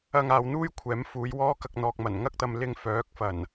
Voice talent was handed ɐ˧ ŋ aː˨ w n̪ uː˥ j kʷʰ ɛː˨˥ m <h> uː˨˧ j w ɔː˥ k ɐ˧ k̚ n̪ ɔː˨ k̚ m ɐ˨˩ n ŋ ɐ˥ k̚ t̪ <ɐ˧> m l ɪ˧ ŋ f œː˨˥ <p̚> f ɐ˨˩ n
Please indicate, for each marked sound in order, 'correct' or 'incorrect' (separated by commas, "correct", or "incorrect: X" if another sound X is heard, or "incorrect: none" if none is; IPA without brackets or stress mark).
incorrect: f, correct, incorrect: k̚